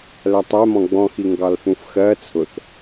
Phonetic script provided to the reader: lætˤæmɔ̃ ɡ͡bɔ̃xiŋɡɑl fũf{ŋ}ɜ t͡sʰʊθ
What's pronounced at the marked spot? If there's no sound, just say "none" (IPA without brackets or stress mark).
x